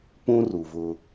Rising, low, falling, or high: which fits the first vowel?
high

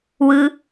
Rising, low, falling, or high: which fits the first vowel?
high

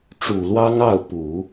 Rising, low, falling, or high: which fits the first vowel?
low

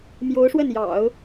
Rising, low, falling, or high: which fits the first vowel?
rising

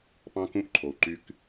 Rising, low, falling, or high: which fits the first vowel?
high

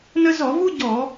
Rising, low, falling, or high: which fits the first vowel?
high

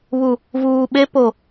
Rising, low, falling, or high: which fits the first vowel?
low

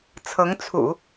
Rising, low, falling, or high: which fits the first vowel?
rising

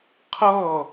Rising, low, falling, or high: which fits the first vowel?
falling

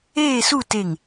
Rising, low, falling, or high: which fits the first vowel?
falling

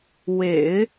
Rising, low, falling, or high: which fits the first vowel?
low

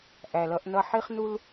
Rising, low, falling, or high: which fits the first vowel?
low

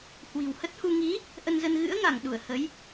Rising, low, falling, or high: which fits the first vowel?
low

